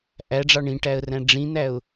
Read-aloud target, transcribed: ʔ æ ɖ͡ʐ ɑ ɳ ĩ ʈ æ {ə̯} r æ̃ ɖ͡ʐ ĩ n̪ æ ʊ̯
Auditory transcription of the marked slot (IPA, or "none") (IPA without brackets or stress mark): ə̯